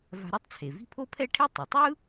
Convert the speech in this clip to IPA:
va̤˧ɾɛ˥tˤt͡sʰe˩vi̤˥ pʰo˥pʰɛ˥ʈʰe˥ tˤɯ˩tˤɯ˥

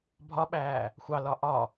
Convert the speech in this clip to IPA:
bʱɒɓæː | xʷɑlɒ ʔɒ

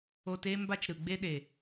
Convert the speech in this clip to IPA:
o˧te˦ mba˦t͡ʃɾɯ˨ɡ͡be˦ɗe˨

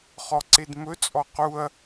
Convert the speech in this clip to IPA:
χɔǀedmɵt͡sʼɔ quɐ̯

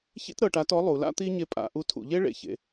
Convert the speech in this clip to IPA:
çḭ˥tɾɤ˩˧ʈa˧˥tɔ˧˥ lˠu˩˧la̰˥ t̪i˥ɲe˧˥ pʼa̰˩˧ʔu˧˥tʰṵ˩˧ ʎe˥ɭḛ˩çḛ˩˧

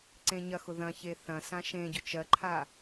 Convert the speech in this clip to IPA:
ǀẽɲɐxʊ ðɐ̃çe θɐ̃sã ʃẽɟʊ t͡ʃɜǃʰa

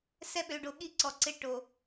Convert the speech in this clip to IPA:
sɛ˦ɓø˨ɖo˨ ɠi˦ǀɔ˨ ǀɪ˦ʈo˨

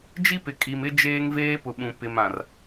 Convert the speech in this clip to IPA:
d͡ʒi˦pɪ˨ kʼi˨mɪ˦ d͡ʒeː˦ŋveː˦pʊ˨ɓũ˨ pɪ˨mã˨r

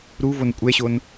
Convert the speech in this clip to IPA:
ɾuvon kʷʼɛɕon

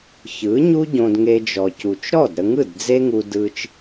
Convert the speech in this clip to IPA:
çɯ˨˦ɲu˦ ɟõ˧dŋe˧ d͡ʒɔ˨cu˨t͡ʃ ɾɔ˦˨dɾə˧ŋɯ˦˨d d͡ze˦ŋu˧dɯ˧t͡ʃ

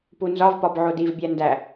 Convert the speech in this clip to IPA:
punzɒvpɒb ʕodivbʲæ ndæ

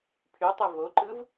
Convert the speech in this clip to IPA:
pʰytˤɯ voǃɯv

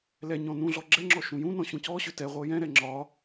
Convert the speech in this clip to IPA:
lɛɲɔ̃ nũɮɔ ɡ͡ǁɛŋ͡ǁɔ ʃũjũnɔ̃ ɕũcɔɕʏ tɛʁʷɤ jɛ̃ɾɛ ŋ͡ǁɒ

